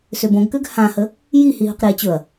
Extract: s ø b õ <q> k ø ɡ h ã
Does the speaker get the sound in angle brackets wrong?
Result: yes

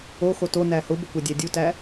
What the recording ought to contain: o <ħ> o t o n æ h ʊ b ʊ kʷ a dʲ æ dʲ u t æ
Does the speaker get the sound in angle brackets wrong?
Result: yes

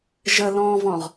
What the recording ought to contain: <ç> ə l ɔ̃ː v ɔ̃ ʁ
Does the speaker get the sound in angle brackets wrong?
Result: yes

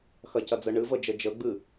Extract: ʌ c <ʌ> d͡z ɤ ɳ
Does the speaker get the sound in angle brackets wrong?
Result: no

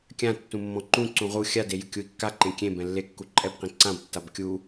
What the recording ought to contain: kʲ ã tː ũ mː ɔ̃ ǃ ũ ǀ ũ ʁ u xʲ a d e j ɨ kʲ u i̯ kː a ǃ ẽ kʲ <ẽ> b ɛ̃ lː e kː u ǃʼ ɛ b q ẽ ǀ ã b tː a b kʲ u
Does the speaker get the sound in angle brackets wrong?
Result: no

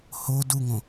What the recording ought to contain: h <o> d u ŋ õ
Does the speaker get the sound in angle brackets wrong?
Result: no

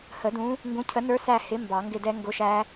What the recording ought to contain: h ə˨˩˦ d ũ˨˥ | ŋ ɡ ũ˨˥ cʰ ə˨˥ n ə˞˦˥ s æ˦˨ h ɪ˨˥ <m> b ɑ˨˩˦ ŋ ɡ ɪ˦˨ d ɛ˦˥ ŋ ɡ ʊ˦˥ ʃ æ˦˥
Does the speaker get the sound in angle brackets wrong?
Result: no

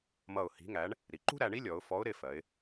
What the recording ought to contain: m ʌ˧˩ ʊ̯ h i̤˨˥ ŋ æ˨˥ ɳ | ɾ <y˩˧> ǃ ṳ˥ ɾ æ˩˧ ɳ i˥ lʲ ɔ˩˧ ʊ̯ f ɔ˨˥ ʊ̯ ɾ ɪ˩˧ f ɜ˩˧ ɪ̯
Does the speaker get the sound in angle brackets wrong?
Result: yes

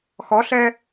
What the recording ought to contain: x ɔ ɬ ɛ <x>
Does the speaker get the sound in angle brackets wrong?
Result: yes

